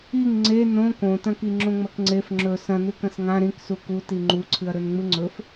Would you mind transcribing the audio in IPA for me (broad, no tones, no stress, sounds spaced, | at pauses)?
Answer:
i ŋ ŋ͡ǀ e n õ k õ t ɐ̃ k i ŋ͡ǁ õ ŋ͡m ɐ k ŋ͡ǀ e f ŋ͡ǁ ɵ s ɐ̃ n ʉ k ɐ̃ s ŋ ã ɾ ĩ k s u k u t i ŋ͡ǃ u ǀʰ ɨ ɐ̯ ɾ ɵ n ŋ͡m ɨ ŋ͡ǀ ɵ f